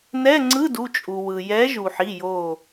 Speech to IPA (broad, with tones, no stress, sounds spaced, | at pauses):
n ɛ˧˥˧ ŋ͡ǀ ɯ˧˥˧ d u˩˧˩ t͡ʃʼ u˩ w ɯ˩ j ɛ˨˥ ʒ u˩ ħ i˩˧˩ j o˧˩